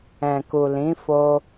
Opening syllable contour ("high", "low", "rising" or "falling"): low